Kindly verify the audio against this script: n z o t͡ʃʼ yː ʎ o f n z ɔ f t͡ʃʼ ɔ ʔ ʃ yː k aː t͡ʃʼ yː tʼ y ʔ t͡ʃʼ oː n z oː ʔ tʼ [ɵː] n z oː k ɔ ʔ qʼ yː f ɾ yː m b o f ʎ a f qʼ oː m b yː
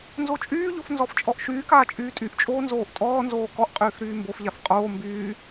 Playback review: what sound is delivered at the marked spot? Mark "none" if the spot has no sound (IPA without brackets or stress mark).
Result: ɔː